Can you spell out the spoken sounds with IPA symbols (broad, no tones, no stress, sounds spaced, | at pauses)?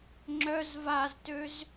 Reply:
ŋ͡ǁ œ z v a z t ø z